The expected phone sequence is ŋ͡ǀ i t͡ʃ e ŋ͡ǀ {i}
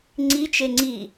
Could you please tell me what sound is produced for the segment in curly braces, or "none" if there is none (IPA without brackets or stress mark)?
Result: i